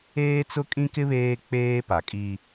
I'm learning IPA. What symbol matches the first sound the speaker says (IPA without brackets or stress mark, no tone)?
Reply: eː